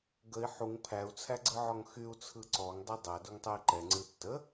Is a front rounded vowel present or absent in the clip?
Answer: present